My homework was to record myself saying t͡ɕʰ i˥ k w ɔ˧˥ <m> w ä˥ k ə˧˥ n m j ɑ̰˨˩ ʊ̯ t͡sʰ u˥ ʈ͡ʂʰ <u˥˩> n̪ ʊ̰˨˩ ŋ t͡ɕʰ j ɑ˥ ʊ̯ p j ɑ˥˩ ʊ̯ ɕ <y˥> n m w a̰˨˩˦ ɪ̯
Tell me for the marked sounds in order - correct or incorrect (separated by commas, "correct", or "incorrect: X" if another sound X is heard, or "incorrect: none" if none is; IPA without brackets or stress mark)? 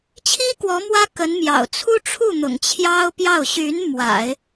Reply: correct, correct, incorrect: y˧˥